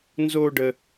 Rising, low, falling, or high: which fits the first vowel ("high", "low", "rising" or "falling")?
high